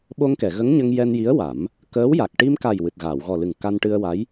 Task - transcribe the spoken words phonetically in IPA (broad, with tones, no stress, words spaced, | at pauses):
ɓo˧ŋkɛ˨˩˨ɣə˧˥ŋ ɲə˧ŋ jɛ˧nji˧˥ə̯wa˨˩˦m | kəː˧˥wja˨˩k̚ ʈi˧mka˨˩j wɨ˨˩t̚ɣaː˨˩˨wɣɔ˨˩lɨ˨˩ŋ ka˧nʈɨ˧ə̯wa˧˥j